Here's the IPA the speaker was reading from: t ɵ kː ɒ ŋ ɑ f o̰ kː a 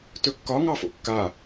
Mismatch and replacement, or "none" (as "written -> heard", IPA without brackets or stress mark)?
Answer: none